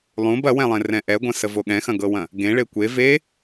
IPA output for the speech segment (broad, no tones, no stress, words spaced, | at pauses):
lˠũb ɐwɛ̃lˠẽrɛ̃ ʔɛɡʷɐ̃səvo ɠɛ̃xɐ̃ɡɤwɐ̃ | ɡẽɭe kʷe ve